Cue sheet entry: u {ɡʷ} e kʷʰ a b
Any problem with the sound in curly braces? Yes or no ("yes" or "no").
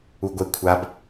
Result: no